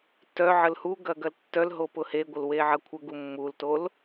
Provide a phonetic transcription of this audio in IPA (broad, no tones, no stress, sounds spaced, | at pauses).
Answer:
t œ ʕ ə l h u ɡ ɐ ɡ ɐ l tː œ l ɦ o p ʊ h e ɡʷ ə l w e ʕ ɐ kʷʰ ə ɡ u mː u l t o l